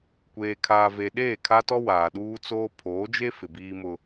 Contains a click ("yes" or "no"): no